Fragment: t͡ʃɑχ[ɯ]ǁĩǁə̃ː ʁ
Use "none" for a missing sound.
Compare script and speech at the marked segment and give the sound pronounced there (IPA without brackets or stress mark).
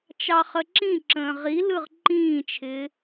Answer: ə